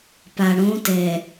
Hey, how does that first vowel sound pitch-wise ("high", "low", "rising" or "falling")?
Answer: low